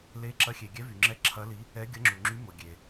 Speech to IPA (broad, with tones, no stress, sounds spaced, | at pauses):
l e˧˥ ǁ ɐ˧˥ xʲ e˨ ɡʲ ɛ˧˥ v y˨ ŋ͡ǁ ɛ˧˥ ǁʰ ɐ˧˥ l i˧˥ | ɛ˧˥ ɡʲ ɐ˧˥ ŋ͡ǁ u˨ ŋ͡ǁ y˧˥ m ʊ˨ ɡʲ e˨